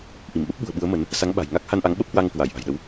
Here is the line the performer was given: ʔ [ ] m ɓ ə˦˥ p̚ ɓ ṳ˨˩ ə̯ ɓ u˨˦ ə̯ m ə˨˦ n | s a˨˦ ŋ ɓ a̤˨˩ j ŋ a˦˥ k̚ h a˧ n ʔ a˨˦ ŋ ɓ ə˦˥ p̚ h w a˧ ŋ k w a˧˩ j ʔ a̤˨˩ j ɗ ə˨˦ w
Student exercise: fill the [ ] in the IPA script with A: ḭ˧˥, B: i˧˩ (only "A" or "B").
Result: B